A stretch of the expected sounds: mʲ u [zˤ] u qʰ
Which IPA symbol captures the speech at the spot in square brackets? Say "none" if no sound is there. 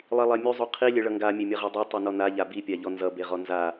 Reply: zˤ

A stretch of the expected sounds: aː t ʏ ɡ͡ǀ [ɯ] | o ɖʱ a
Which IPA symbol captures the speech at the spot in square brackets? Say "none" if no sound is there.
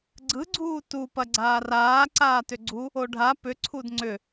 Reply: u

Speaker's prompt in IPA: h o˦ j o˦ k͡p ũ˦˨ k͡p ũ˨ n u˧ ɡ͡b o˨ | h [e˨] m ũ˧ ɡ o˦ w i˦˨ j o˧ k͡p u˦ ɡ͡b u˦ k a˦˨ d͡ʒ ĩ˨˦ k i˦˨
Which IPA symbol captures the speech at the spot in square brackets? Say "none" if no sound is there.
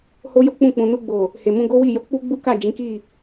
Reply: e˨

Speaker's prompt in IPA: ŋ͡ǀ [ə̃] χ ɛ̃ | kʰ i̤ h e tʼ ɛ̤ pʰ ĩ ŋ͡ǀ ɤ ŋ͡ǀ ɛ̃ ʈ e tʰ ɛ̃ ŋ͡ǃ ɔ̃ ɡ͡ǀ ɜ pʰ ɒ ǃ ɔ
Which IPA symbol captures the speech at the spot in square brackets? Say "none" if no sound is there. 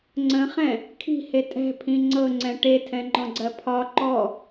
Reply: ə̃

